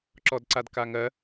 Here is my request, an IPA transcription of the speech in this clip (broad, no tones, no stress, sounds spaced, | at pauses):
ǁ ɔ d ǀ a d k a ŋ ɜ